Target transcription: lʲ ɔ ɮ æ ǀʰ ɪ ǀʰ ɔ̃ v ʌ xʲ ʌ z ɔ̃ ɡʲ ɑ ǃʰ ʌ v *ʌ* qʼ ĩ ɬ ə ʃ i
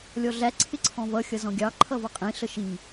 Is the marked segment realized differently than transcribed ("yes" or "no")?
no